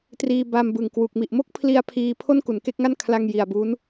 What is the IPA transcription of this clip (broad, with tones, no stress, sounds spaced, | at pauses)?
t r iː˧ b a˧ m b ɯ˨˩ ŋ k w u˨˩ k̚ m i˨˩ ʔ m o˥˩ k̚ pʰ l i˧ a̯ pʰ iː˧ pʰ o˥˩ n k u˨˩ n k e˥˩ k̚ ŋ a˥˩ n kʰ l a˧ ŋ j i˨˩ a̯ b uː˦˥ n